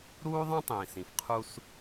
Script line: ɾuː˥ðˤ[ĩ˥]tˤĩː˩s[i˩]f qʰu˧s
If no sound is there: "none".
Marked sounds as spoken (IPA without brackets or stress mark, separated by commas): ĩ˥, ĩ˩